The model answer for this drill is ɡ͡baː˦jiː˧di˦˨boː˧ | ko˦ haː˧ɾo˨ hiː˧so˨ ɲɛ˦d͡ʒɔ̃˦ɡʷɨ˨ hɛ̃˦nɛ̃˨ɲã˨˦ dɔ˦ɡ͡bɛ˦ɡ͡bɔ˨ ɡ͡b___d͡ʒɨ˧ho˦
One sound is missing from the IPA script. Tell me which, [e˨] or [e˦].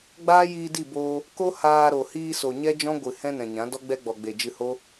e˨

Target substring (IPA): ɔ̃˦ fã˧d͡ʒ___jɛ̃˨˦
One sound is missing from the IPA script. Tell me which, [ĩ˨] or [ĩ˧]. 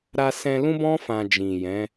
ĩ˨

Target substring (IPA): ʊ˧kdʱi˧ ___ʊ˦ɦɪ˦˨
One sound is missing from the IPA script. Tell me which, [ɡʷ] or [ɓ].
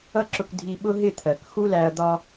ɓ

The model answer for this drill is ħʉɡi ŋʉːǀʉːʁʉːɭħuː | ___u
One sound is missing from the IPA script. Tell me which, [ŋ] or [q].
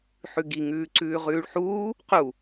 q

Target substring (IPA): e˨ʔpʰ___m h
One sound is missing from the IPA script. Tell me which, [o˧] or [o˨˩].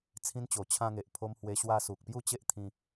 o˧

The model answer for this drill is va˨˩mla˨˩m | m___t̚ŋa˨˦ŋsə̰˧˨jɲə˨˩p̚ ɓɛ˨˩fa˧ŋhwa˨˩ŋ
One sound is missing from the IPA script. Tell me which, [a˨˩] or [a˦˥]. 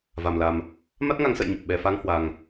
a˦˥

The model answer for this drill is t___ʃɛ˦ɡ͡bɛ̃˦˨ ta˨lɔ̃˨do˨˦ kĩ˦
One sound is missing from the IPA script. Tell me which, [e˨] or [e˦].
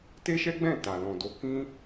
e˦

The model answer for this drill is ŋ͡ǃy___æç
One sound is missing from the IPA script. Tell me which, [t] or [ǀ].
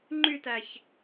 t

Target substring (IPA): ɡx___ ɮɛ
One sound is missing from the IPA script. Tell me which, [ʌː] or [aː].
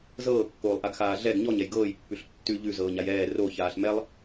aː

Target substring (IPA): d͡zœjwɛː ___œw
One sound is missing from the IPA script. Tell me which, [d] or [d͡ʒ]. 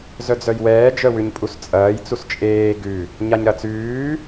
d͡ʒ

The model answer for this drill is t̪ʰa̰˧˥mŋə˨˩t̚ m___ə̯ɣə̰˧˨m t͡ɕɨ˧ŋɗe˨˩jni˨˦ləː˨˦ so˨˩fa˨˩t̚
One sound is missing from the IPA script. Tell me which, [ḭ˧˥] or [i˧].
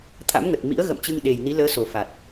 ḭ˧˥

